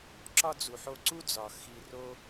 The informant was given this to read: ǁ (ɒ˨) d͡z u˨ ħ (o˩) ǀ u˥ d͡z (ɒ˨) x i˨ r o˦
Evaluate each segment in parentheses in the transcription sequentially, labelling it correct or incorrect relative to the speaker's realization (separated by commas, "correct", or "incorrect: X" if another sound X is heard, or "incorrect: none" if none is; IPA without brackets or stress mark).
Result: incorrect: ɒ˥, incorrect: o˦, correct